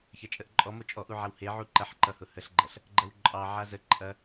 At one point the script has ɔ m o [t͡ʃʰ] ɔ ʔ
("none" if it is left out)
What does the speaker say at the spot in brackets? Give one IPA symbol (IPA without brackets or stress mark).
t͡ʃʼ